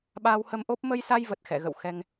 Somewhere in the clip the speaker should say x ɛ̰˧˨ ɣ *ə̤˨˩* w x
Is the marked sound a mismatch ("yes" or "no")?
yes